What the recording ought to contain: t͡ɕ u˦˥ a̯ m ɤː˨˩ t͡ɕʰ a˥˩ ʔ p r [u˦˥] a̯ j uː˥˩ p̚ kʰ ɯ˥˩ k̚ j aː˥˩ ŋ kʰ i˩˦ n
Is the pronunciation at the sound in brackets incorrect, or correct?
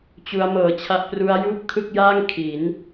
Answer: correct